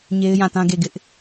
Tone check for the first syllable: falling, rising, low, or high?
high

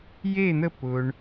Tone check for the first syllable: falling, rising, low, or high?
falling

